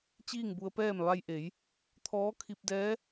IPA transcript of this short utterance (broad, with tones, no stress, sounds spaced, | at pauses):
t͡ɕ iː˥˨ ŋ b u˧ ə̯ p ɛː˥˨ m ʋ a˧ j ʔ e˩˧ j | t̪ʰ ɔː˧˥ kʰ i˧ p̚ d ɛː˧˥